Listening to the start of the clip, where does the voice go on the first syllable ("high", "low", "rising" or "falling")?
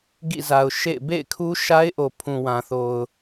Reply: falling